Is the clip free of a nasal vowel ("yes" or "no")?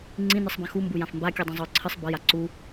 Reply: no